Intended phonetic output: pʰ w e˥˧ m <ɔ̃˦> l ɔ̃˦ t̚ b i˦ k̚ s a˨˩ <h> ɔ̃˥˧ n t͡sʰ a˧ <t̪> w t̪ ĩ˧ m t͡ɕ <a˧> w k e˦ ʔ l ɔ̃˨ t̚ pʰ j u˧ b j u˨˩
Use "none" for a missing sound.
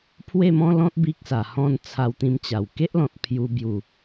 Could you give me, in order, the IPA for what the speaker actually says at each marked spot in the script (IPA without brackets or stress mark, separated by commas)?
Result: ɔ̃˦, h, none, a˨˩